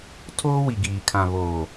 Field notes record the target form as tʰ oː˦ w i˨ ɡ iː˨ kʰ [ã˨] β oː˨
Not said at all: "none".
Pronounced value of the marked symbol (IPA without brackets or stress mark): ã˨